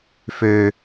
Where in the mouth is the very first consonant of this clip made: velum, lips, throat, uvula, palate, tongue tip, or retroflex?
lips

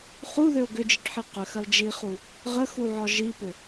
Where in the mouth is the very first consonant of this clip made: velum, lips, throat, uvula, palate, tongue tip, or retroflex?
uvula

